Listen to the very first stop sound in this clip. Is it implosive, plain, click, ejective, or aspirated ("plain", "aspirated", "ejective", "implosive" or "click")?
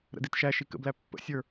plain